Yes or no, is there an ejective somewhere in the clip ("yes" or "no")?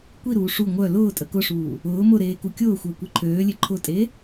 yes